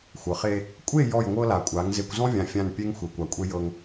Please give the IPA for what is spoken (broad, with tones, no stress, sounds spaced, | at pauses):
xʷ ɤ˨ χ e˦ | kʷʼ e˦˨ j ɔ˦˨ j ŋʷ ɤ˦ l a˨ kʷʼ a˨˦ ŋ z e˨ kʷ z ɔ̃˦ vʲ ã˨ fʲ ã˦˨ n pʲ e˦ ŋ xʷ e˨ kʷ a˨ kʷʼ e˦ j ɤ˦ ŋ